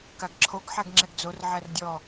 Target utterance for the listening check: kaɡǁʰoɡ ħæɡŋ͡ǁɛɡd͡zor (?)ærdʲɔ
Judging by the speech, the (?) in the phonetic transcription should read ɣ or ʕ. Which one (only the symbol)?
ʕ